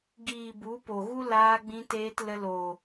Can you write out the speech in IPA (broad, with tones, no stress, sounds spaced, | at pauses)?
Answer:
ɡ iː˨ b u˨˦ p o˨ ɣ u˦ l aː˧ ɡ͡b ĩ˧ t eː˧ t l ə˧ l oː˨